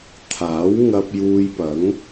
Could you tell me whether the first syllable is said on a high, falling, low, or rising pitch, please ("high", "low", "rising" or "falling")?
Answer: rising